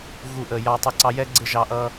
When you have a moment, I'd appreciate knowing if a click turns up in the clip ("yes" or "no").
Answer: yes